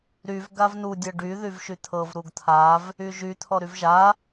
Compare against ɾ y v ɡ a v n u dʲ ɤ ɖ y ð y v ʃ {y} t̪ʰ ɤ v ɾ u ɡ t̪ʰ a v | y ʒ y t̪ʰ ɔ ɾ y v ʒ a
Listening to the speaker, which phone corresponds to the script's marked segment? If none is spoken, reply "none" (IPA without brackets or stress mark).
y